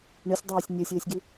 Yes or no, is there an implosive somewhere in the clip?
no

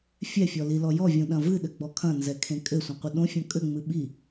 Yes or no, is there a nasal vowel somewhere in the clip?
yes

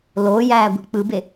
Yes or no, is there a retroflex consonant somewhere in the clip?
no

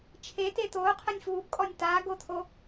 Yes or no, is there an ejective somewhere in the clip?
yes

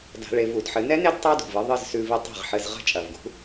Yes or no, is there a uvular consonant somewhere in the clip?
yes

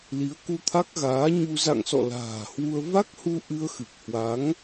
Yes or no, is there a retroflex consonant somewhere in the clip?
no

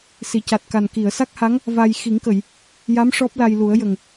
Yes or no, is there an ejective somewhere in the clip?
no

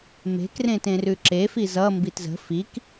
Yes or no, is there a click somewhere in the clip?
yes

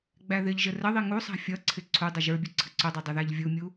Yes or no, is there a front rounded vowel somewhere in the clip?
no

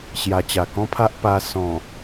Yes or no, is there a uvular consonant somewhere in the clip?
no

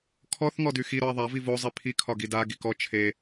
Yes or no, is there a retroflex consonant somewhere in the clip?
no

